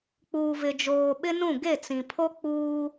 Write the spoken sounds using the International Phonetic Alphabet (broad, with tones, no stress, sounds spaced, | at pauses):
k͡p uː˨ v ɪ˨ d͡ʒ oː˨ ɓ ɪ˦ n ũ˦˨ ɡ e˦˨ t͡s ĩ˨ pʰ o˦ k͡p uː˦